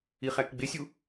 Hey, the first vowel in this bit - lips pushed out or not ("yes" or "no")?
no